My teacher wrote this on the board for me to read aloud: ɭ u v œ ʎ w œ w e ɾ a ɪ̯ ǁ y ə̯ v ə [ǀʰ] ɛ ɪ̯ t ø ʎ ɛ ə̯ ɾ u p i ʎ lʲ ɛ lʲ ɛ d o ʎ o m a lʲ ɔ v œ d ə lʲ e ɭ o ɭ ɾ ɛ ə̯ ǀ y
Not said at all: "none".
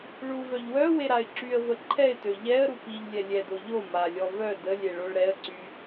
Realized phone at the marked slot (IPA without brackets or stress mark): ǃʰ